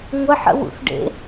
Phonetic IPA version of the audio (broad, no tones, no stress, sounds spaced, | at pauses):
ŋʷ ə ħ ə̰ w ṵ θ ɖ ḛ